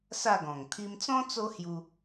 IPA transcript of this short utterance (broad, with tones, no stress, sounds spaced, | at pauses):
s a˥˧ ɡ ɔ̃˨˩ ŋ t̪ʰ i˧ m t͡s ɔ̃˦ t͡s o˦ h j u˧